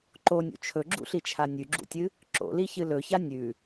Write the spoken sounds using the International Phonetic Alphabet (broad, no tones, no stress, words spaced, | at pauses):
ǃonʲṵ t͡ʃʰɵɡ͡ǁṵɬit͡ʃʰa nʲʉɡ͡ǁṵtʲɨ | ǁo̰liçɨ lɵça nʲʉ